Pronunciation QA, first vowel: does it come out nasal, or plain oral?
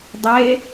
oral